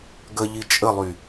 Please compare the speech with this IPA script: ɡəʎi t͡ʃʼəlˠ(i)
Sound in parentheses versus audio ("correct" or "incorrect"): incorrect